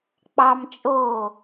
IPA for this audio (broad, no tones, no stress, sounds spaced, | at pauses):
k͡p ɑ m t͡ʃʼ oː